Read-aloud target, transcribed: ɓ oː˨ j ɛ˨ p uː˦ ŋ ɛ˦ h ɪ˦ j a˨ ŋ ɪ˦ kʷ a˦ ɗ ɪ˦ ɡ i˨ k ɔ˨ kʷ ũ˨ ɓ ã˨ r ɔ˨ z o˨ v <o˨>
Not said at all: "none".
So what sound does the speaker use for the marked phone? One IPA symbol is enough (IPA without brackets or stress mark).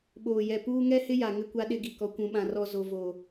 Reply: o˨